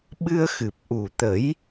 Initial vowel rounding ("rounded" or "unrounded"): unrounded